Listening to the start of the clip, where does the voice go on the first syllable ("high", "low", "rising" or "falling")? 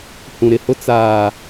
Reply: low